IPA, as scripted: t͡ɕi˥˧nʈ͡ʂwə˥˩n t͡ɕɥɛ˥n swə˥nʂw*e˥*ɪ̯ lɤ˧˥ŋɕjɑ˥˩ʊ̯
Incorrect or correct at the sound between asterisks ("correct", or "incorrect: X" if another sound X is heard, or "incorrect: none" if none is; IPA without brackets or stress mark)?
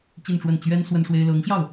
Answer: correct